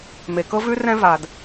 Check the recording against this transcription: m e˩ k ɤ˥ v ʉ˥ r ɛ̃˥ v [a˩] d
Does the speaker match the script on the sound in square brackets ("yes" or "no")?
yes